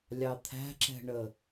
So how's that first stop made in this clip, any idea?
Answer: aspirated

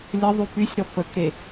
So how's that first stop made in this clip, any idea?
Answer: plain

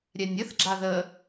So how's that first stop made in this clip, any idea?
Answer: click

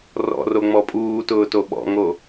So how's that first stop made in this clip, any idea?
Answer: ejective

